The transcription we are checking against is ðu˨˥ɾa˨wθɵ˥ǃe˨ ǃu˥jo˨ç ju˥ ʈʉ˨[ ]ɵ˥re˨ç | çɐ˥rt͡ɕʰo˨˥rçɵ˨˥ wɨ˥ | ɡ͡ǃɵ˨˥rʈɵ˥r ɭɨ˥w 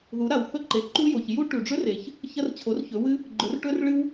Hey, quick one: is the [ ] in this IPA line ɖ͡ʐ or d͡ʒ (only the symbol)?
ɖ͡ʐ